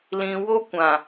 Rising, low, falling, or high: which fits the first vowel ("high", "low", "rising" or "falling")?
low